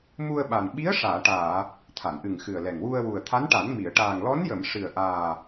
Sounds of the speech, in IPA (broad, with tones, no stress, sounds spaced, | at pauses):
m u˧ ə̯ ɓ a˨˩ n ɓ i˧˥ ə̯ ʂ aː˨˩˨ ʈ aː˨˩˨ | t̪ʰ a˨˩˨ n ʔ ɨ˨˩ ŋ x ɨ˨˩ ə̯ l ɛ˨˩ ŋ w u˧ ə̯ w u˨˩ ə̯ t̪ʰ a˧˥ n ʈ a˨˩˦ n m i˨˩˨ ə̯ ʈ aː˨˩ ŋ l ɔ˧˥ n j ə˨˩˨ m ʂ ɨ˨˩ ə̯ ʔ aː˨˩